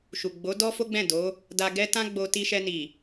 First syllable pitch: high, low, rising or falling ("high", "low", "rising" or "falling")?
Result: low